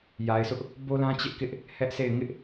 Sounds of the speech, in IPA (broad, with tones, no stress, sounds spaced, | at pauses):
j a˨ ɪ̯ sʰ ʊ˦ ʔ | b o˦ l ã˦ t͡ɕ ɪ˦ ʔ k ɪ˦ ʔ | h ɛ˦ ʔ s e˦˨ ɪ̯ ŋ ɪ˦ ʔ